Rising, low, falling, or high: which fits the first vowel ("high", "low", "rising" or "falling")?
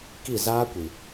falling